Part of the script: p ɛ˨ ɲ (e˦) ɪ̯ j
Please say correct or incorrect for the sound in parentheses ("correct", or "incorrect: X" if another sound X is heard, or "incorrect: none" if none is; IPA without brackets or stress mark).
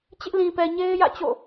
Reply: correct